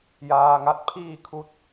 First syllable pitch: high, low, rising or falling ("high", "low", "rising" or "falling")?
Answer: low